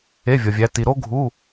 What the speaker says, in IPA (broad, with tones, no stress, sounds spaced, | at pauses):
e˧˥˧ vʲ ɒ˨ vʲ æ˨˦ t i˨ ɾ o˥ ɡʱ u˧˥˧